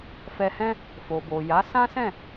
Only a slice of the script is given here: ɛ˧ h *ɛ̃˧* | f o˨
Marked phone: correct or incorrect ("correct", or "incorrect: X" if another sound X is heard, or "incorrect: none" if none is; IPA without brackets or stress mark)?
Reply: incorrect: ɛ̃˦